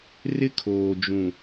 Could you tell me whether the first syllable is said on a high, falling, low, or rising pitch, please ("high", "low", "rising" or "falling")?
high